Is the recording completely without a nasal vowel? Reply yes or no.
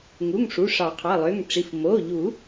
yes